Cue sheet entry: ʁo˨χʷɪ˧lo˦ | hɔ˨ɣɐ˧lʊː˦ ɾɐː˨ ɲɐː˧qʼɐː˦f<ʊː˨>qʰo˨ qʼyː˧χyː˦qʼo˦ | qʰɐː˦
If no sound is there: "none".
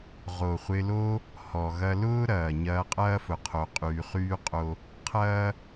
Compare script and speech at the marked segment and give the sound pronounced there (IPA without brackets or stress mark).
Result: ʊ˨